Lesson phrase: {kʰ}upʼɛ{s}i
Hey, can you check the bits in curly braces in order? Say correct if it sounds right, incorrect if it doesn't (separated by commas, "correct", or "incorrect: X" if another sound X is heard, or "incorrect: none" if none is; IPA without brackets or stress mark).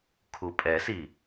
correct, correct